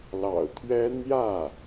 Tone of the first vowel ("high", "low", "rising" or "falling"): low